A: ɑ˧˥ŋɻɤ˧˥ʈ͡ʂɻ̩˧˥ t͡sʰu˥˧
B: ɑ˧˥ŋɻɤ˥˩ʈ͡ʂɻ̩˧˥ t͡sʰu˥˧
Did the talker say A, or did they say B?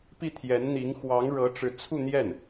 A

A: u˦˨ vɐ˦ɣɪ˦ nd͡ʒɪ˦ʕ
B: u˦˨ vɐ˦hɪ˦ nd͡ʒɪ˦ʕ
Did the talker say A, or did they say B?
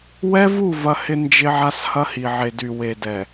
B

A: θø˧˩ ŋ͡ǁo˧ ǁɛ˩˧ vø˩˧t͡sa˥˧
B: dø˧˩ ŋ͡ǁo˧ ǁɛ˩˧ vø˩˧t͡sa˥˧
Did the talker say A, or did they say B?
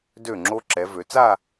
B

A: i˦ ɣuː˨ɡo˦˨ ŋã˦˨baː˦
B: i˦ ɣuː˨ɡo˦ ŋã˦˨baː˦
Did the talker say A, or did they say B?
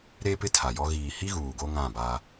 B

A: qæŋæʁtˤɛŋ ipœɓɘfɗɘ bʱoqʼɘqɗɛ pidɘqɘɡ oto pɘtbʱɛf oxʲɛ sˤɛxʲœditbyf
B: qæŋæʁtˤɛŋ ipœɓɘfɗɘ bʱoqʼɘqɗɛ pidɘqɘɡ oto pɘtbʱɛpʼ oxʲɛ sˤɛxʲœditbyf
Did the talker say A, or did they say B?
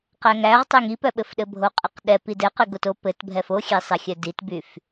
A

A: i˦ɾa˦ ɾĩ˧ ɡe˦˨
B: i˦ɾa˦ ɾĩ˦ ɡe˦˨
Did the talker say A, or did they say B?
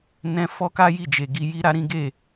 B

